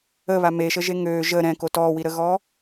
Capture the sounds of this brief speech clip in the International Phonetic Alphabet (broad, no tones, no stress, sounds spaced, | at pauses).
ə β a m e ʃ ə ʒ e ŋ øː ʒ ə ɾ ɛ̃ k o t ɔː w i ɾ ə ɣ ɔː